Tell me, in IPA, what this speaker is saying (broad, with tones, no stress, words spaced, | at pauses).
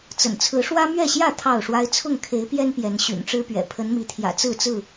t͡sə̰˨˩nt͡sʰɹ̩˨˦ ʂwä˦mɥɛ˥˨ɕjä˥˨ t̪ʰɑ˥˨ʊ̯ʂwa˦ɪ̯ t͡sʰʊ˥˨ŋkʰe˨˦ɪ̯pjɛ˦n pjɛ˨˦nɕy̰˨˩nʈ͡ʂɻ̩˦pɥɛ̰˨˩ pʰə˨˦nmi˨˦t̪ʰjä̰˨˩ t͡sɹ̩˥˨t͡sɹ̩˥˨